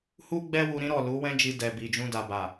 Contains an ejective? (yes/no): no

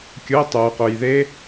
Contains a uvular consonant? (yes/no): yes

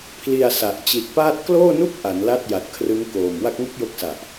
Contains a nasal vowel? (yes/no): no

